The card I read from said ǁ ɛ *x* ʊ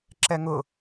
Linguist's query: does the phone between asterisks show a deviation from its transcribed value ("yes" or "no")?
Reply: yes